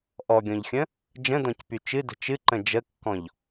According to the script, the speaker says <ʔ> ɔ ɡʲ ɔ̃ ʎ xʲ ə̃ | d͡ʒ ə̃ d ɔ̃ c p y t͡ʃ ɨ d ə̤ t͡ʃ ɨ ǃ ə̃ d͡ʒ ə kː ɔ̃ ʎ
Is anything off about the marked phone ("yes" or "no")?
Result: no